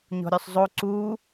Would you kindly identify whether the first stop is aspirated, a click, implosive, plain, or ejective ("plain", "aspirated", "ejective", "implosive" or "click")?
click